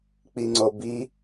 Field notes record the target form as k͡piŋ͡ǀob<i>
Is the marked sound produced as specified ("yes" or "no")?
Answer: yes